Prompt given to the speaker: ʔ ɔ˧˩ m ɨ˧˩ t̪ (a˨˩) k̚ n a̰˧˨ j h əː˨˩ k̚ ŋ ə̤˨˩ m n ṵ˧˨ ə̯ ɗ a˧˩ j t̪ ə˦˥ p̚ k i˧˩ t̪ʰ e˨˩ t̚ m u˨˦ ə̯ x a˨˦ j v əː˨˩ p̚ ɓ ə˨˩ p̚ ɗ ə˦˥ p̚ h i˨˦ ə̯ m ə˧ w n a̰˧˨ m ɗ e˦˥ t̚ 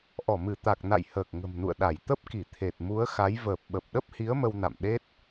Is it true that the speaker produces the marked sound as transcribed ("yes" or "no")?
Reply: yes